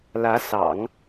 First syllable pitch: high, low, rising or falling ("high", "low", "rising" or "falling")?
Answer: rising